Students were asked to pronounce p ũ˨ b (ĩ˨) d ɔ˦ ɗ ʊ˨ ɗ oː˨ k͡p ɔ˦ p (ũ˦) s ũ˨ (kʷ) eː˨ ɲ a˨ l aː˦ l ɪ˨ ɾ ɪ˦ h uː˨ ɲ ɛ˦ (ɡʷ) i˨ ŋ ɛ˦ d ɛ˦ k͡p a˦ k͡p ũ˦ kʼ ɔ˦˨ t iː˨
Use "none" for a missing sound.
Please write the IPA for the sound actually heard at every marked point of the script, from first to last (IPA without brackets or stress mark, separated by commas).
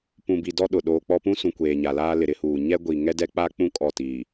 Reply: i˨, ũ˦, kʷ, ɡʷ